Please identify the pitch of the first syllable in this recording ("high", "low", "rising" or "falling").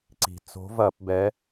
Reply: low